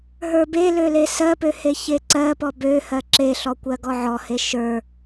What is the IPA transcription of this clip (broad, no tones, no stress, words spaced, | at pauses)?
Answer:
ɦə˞belø lesɜpø heçeǀɜpɔ bøhɜ ǁeɬɔ kʷɜɡɔʕɔhe ʃə˞